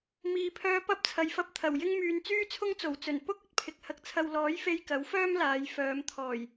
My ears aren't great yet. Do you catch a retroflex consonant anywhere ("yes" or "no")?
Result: no